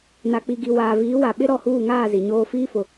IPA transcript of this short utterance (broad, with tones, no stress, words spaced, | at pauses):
na˨k͡pi˨ɡi˨ waː˨viː˨˦wa˨ ɓɪ˦ ɾɔ˦˨huː˦˨ŋaː˦˨ zi˨ɲoː˦ fiː˦fʊ˨